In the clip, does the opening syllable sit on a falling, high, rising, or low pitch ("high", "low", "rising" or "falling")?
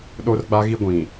high